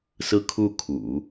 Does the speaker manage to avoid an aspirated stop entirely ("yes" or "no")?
no